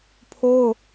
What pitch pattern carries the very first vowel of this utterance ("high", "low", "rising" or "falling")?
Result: high